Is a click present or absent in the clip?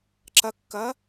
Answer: present